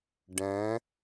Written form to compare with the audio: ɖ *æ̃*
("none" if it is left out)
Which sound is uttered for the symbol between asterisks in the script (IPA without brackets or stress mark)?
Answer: æ̃